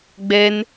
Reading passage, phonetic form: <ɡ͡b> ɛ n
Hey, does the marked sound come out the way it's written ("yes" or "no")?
yes